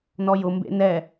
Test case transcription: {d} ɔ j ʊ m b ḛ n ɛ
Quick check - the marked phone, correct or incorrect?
incorrect